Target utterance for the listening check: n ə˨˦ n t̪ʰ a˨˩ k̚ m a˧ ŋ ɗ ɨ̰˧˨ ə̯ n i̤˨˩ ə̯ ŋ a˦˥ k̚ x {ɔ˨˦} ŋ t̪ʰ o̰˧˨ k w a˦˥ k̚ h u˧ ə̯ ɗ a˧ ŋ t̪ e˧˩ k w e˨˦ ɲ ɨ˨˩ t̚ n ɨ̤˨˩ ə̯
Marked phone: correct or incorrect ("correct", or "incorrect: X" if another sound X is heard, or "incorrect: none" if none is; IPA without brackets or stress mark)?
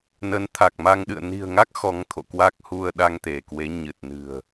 correct